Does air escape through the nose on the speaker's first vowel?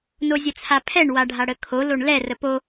no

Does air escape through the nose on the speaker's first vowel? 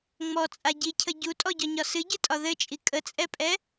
no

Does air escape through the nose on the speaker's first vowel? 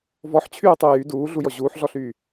no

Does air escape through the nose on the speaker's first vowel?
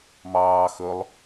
no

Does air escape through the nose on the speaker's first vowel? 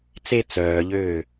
no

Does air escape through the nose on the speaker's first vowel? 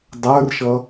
no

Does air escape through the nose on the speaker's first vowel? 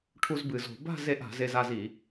no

